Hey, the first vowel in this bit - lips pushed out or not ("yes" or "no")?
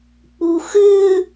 yes